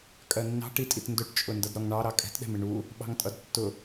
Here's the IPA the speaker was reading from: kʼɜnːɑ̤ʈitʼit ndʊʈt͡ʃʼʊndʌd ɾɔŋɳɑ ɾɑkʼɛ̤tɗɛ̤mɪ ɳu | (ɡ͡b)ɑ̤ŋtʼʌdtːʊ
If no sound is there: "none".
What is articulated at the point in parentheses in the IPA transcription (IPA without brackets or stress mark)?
ɓ